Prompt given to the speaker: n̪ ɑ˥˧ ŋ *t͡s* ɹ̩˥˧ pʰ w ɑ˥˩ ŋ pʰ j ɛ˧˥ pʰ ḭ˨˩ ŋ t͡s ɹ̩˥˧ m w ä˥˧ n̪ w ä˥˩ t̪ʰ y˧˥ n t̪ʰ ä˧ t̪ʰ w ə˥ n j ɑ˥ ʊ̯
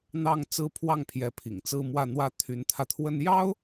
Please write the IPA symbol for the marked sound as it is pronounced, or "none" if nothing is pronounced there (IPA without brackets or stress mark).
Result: t͡s